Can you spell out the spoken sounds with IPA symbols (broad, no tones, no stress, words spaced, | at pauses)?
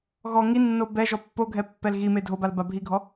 ɣɔ ŋinːo bɛ ʒɔpːoɡʱɛ pːɛlɣime dʱobal babʱiɡʱɔ